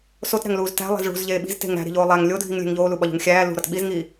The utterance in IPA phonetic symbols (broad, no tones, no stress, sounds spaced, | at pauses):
s o t ɾ æ̤ ŋ l uː z t æ̤ lˠ e̤ z ɭ ṳ z ʎ eː ɓ i̤ z t e̤ ŋ ɾ æ̤ ɾ i̤ ʎ oː lˠ æ ŋ lʲ o dʱ i ŋ lʲ e̤ ŋ ʎ oː l u ɓ ɒ ʎ ṳ ŋ xʲ æː l ṳ ɾ ɒ t ɓ i z ŋ iː